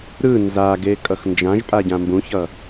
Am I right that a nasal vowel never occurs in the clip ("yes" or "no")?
no